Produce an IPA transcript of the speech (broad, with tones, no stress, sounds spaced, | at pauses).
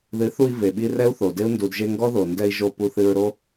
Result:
ð ɨ˨˦ θ u˧ i̯ v e˨ ɓ i˦ r ɛ˦ u̯ θ o˨ d e˦ u̯ n d u˨ d ʒ e˧ ŋ ɡ ɔ˦ ð o˨ n d ɛ˧ i̯ ʒ o˧ p u˧ θ ɨ˧ ɹ ɾ o˦